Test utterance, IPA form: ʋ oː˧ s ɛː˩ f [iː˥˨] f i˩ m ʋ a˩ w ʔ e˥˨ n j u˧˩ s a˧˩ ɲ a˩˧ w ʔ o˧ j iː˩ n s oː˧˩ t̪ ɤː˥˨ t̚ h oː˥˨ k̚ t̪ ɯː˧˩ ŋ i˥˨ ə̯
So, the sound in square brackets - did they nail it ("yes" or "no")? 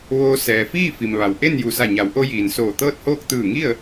yes